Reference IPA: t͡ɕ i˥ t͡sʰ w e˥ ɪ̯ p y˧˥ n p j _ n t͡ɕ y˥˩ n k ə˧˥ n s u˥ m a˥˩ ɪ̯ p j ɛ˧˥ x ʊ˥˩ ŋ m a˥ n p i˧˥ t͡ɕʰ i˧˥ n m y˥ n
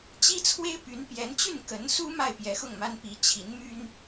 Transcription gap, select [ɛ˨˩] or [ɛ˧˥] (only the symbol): ɛ˧˥